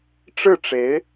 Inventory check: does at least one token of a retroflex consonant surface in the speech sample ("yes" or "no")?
yes